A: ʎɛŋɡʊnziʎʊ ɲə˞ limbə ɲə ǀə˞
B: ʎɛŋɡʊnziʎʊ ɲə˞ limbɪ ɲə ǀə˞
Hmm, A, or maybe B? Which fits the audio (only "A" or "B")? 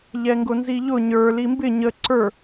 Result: B